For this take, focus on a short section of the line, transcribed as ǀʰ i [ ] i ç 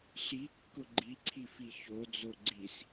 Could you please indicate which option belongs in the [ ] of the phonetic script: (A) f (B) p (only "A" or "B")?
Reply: A